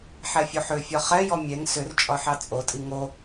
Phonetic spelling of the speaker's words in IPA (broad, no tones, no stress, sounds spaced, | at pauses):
ħ ɛ fʲ o ħ ʏ fʲ ɒ χ ɛ j ɔ mʲ ɛ ŋ s ʏ r t͡ʃʼ ɒ ħ ɑ t͡sʼ o tʼ i ŋ o